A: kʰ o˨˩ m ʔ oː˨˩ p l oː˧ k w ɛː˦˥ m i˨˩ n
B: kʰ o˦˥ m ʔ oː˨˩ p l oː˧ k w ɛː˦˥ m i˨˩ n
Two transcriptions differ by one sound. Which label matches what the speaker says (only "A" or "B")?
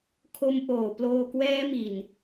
B